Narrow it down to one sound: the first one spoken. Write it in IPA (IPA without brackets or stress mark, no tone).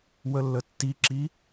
w